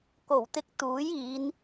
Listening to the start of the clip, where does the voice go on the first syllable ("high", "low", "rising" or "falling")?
low